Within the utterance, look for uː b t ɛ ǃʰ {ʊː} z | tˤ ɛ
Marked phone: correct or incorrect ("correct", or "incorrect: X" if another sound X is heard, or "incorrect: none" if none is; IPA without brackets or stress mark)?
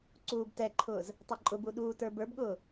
correct